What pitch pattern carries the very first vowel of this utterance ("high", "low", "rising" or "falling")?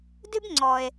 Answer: high